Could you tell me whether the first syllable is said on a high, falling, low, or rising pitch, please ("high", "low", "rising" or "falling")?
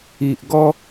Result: low